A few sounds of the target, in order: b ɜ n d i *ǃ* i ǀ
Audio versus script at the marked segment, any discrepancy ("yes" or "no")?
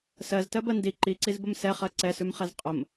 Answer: no